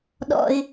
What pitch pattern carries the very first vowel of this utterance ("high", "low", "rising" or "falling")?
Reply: low